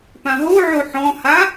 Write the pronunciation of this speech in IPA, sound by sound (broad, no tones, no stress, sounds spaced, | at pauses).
p ã ɦ o ʕ o ħ ɔ̃ h a